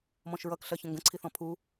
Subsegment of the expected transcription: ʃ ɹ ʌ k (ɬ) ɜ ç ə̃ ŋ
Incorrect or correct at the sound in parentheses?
correct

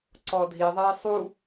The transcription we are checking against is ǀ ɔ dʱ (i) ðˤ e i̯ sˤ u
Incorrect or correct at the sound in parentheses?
correct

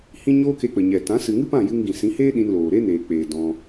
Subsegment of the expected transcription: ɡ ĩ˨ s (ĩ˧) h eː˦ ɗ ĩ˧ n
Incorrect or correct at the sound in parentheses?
incorrect: ĩ˨˦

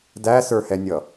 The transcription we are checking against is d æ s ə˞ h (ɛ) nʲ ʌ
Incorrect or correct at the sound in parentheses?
correct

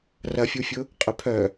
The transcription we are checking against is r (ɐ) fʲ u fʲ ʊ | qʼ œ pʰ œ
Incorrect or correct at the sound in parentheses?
correct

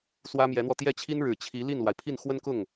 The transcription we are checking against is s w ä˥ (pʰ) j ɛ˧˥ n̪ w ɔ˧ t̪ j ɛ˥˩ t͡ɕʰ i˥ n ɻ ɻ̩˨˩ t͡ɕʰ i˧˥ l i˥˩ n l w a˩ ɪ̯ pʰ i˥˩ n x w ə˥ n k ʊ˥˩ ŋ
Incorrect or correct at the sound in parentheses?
incorrect: m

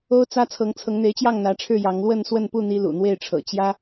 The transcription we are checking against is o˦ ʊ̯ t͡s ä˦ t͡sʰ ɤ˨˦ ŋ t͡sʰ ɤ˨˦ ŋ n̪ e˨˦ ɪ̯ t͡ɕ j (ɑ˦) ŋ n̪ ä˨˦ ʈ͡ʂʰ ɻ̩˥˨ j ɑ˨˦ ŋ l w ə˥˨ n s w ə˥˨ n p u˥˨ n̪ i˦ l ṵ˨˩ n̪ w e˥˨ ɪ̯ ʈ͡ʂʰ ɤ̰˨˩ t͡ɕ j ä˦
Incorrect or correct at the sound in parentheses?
incorrect: ɑ˥˨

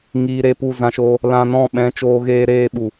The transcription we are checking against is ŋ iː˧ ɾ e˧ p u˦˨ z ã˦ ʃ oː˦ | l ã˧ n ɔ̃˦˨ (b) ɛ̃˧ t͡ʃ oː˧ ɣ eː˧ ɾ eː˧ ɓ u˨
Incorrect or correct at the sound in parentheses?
incorrect: ɓ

